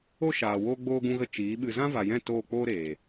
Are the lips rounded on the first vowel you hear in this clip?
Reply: yes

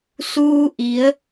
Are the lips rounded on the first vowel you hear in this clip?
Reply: yes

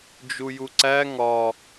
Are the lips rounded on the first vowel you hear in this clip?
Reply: yes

